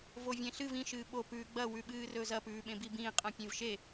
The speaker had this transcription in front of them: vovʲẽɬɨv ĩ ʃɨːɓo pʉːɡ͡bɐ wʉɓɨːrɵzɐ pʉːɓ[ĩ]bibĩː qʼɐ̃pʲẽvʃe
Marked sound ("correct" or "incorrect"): incorrect